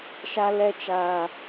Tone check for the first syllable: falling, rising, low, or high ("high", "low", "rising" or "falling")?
high